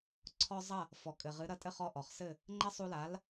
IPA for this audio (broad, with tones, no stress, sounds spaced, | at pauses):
ǀʰ ɔ˧ zˤ ɐ˥˩ | f ɔ˩ kʼ ɘ˩ ʁ ɨ˩˥ ɾ ɐ˧ tʼ ɘ˥˩ χ ɔ˧ ʔ ɔ˩ χ s ɘ˥˩ | ŋ͡ǃ ɐ˥ sˤ u˧ l a˩˥ l